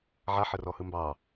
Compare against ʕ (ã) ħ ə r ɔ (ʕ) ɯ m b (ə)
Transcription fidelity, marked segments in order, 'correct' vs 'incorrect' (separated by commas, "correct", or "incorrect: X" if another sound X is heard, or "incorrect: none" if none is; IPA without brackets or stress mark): incorrect: a, incorrect: h, incorrect: ɑ